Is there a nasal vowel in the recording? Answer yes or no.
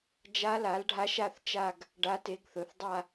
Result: no